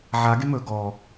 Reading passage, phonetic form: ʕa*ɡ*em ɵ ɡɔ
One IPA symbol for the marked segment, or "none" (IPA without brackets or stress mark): ɡ